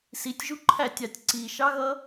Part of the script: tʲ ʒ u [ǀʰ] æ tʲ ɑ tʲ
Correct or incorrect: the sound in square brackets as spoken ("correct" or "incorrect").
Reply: incorrect